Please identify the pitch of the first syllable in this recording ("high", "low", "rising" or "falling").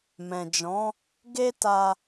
low